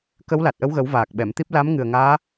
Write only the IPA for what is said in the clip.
kə˧˥wla˨˩t̚ʔə˧˥wɣə˨˩˦w vaː˨˩k̚ɓɛ˨˩˨mt̪i˦˥p̚ la˧˥m ŋɨ˨˩ə̯ŋaː˧˥

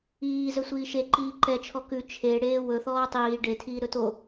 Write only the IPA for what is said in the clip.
iː zɵsʷiːʃe ǃiːǃɛ t͡ʃʰɔkʉ t͡ʃʰe ɽeːwɵ θɔːtˤiː ɖe tʰiːɾɵto

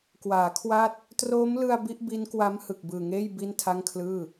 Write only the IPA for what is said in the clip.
kwaː˩˦kʰwa˦˥t̚ | troː˦˥mlɯ˧a̯ bi˦˥ʔbi˦˥nkwa˦˥m hɯ˨˩k̚bɯː˨˩ŋeː˥˩j bi˥˩n tʰa˥˩ŋkʰlɯː˥˩

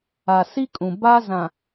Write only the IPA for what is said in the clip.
a˨si˦kʼũ˨ ba˦zã˨

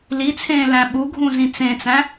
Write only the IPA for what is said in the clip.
lit͡sʰẽːlæ̃ ɓuɡʱũzĩ t͡sẽt͡sæ̃

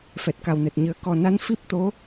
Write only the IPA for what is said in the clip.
fɛ˨˩t̚ka˨˩wnɛ˨˩t̚ɲɨ˨˩ə̯ kɔ˨˩na˧˥n fi˦˥p̚t̪o˧˥

